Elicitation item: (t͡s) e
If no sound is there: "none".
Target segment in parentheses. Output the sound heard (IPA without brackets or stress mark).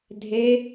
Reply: dʱ